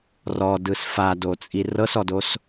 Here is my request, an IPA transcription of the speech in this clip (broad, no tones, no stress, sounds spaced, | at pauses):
r ɔ d ɯ s f a d o t͡sʼ i r ɤ s ɔ d o s